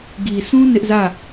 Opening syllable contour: low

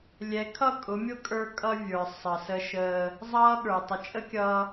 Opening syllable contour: rising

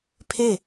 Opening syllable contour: falling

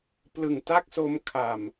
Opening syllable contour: low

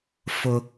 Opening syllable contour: high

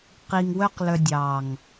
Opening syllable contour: low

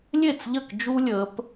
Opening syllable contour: falling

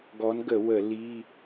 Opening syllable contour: rising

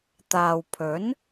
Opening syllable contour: low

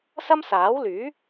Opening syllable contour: high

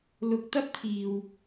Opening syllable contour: rising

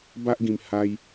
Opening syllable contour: high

